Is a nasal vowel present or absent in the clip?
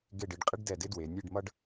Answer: absent